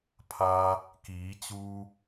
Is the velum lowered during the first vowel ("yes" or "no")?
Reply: no